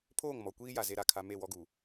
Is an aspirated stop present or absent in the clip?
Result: present